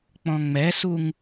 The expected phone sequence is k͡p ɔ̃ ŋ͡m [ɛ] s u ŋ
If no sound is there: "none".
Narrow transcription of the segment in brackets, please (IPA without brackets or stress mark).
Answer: ɛ